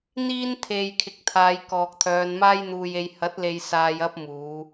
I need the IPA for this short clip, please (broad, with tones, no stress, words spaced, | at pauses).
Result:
n̪iː˥nt̪ʰe˨j kʰɪ˨˥k̚t̪ʰaː˨˧jkɔː˨k̚t̪ʰœː˨˧n maː˥jn̪uː˧je˧j hɐ˨˥t̚le˨j saː˧jɐ˥p̚ muː˨˧